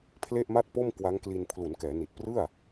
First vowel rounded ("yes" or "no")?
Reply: no